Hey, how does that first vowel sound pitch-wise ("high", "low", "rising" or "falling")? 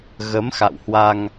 rising